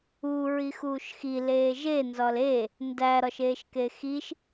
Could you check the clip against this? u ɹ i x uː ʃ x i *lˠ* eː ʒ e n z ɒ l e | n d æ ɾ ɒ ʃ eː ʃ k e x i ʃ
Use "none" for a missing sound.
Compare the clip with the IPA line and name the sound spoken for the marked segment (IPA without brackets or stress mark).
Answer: l